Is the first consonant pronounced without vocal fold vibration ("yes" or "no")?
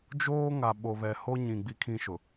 no